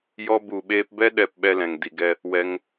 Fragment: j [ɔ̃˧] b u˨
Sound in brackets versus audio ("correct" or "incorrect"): incorrect